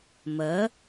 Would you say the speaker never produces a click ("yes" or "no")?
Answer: yes